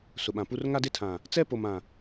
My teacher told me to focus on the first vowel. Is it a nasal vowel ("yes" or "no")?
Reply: no